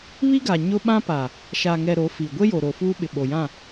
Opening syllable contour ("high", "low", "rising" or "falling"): high